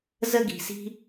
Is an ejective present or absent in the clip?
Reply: absent